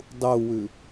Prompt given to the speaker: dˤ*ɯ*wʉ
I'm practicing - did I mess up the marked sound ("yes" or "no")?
yes